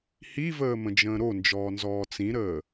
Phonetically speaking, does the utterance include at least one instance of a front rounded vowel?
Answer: no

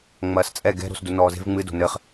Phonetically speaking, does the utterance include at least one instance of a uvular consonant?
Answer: yes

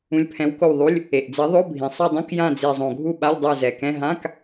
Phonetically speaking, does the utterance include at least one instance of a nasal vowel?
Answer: yes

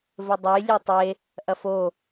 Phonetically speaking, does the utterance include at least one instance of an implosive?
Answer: no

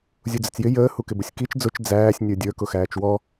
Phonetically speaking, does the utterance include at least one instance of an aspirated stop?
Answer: no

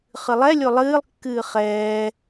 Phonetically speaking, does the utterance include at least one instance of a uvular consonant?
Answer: yes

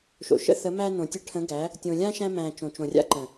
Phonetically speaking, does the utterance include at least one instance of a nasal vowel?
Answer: yes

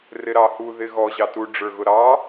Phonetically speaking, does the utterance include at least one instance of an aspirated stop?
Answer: no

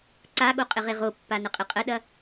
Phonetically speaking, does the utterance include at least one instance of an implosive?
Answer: yes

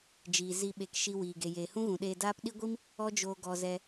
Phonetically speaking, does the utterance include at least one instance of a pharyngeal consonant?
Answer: no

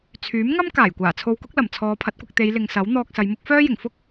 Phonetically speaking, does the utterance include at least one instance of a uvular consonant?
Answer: no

